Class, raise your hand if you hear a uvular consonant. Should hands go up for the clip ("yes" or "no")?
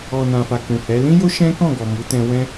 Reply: no